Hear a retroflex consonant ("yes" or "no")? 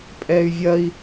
no